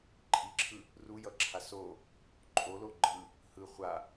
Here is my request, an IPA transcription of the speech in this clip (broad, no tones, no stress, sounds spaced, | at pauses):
ǃʼ i ǁʰ ɯ | r u j ʌ ǁʰ a s o | ǃʼ o l o ɡ͡ǃ ɯ | h ɯ χʷ a